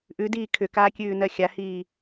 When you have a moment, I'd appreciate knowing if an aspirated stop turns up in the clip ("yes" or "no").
yes